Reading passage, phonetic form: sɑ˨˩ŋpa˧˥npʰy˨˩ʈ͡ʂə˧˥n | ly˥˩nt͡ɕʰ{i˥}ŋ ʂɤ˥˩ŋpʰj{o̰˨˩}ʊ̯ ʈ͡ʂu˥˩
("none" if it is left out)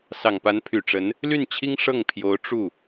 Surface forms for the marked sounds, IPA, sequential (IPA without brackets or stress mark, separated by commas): i˥, o˧˥